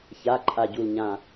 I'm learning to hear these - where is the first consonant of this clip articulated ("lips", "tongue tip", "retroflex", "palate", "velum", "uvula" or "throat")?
palate